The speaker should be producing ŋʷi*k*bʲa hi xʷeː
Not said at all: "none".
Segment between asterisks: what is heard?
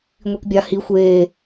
k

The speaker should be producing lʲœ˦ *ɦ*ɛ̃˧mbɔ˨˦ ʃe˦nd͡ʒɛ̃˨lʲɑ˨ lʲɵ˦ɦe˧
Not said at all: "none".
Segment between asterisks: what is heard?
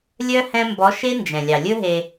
h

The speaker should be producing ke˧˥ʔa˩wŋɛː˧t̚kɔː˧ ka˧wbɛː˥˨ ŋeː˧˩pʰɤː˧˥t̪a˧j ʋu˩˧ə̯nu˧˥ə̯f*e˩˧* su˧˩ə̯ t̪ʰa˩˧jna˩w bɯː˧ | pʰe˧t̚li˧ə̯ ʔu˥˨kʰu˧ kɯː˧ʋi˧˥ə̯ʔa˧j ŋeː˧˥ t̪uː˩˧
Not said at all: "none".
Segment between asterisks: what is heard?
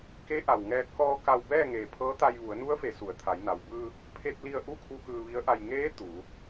e˩˧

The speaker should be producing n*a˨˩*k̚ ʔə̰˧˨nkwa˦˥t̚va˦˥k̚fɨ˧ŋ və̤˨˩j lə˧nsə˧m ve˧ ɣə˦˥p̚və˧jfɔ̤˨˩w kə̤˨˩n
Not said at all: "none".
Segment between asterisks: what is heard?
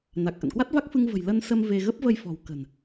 a˨˩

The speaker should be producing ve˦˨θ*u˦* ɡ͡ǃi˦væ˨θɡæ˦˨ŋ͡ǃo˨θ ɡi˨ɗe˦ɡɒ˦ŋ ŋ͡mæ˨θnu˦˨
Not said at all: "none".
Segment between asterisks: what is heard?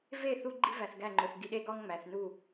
u˦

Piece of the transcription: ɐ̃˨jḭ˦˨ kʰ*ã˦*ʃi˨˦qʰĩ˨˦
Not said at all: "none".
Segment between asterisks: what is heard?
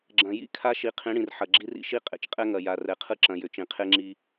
a˦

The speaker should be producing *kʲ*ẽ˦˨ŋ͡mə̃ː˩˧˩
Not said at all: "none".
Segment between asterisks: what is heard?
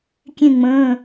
kʲ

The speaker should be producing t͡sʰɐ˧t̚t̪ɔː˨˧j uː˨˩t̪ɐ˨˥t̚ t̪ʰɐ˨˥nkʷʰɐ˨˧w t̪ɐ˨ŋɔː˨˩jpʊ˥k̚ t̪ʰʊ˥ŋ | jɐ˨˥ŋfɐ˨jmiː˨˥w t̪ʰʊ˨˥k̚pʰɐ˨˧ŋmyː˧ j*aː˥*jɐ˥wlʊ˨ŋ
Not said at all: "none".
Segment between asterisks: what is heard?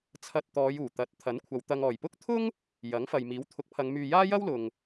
aː˥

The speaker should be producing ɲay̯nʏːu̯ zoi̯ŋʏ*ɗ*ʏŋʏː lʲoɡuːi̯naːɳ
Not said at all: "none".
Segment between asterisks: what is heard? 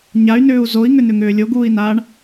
n̪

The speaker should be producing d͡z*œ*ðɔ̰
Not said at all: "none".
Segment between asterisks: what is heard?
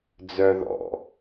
œ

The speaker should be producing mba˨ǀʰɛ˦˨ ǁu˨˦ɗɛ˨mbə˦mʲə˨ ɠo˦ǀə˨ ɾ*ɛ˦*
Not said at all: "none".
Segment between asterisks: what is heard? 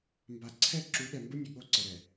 ɛ˨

